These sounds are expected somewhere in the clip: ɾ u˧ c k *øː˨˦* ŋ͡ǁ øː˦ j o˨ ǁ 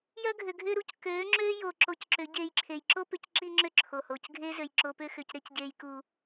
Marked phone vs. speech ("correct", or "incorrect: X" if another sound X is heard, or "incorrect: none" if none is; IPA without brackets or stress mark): correct